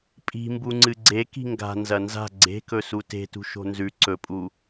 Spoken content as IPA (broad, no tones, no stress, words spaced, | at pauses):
pʼi̤mbuŋ͡ǀɨ ɡ͡ǀe ki̤ŋɡa̤ nzɐnza̤ ɡ͡ǀe̤kɵ sute̤tṳ ʃo̤nzʉ ǀɵpʼu